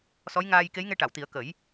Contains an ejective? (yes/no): no